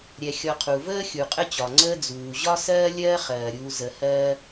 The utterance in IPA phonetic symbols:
ɾʲ ɛ˨ xʲ ɔ˨ qʰ u˩ v əː˥ xʲ u˩ qʼ ə˦ t͡ɕ ɒ˩ ŋ͡ǀ əː˦ d͡z uː˩ ʑ ɒ˥ s ɜː˦ lʲ ɜː˦ χ ɜː˩ ɾʲ uː˨ z ə˨ h ɜː˦

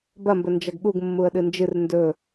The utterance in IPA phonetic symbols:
b ɐ m b ɵ n d͡ʒ ɐ ɡ ɠ u ɡ mː u ə̯ ɗ ɨ n d͡ʒ ɨ r n d ɵ

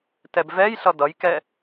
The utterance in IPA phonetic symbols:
t ɛ b v ɛ j ɬ ʌ d ʌ j k ɛ

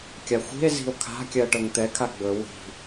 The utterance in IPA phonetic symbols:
kʲ a xʷ i̤ e̯ z i̤ o̯ kʰ a̤ kʲ ɜ ʈ ɤ ŋ t̪ ɛ kʰ a ɡ͡b ɵ w i̤

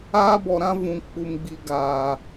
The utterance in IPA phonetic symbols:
aː˦ b ɔ˧ ɾ ã˦ v ũ˧ k͡p u˧ m ɡ͡b i˧ ɡ aː˧

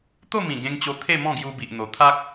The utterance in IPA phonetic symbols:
t̪ o˥˧ m ĩ˨˩ ɡ ẽ˧ ŋ t͡ɕ o˧ t̪ʰ e˥˧ m ɔ̃˥˧ ɡ j u˧ b i˨ ʔ n̪ o˨˩ t̪ʰ a˦ k̚

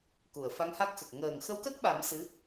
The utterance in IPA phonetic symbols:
k u˨˩˨ ə̯ f a˧˥ ŋ h a˦˥ k̚ x ə˨˩ k̚ ŋ əː˨˩ ŋ x ə˧˥ w k ə˦˥ k̚ ɓ a˨˩˦ m s ɨ˧˥

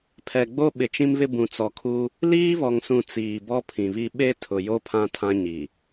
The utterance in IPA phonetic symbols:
pʰ ɛ˨ ɡ͡b o˦ ɓ ɪ˨ t͡ʃ ĩ˦ m β ɪ˦ b ũ˨ t͡s ɔ˨ kʰ u˦ | l iː˦ β ɔ˨ ŋ s ũ˨ t͡s iː˨ b ɔ˦ pʰ ĩ˨ β i˦ ɓ e˦ tʰ ʊ˨ j o˦ pʰ ã˦ tʰ ã˦ ɲ i˨

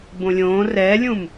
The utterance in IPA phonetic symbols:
b õ lʲ õː r ɛː lʲ ũ m

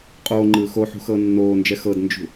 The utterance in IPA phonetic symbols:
qʼ oː ŋ͡ǃ ɯː x o ħ ṳ x ɤː nː oː n d͡ʒ ɛ x ɤ d n d͡ʒ ṳ

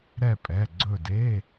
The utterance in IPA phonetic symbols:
ɾ ɛ˦˨ pʼ ɛ˩˧˩ ɡ͡ǀ ɵ˦˨ d e˧˥˧

